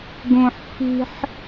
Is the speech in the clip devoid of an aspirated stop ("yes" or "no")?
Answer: yes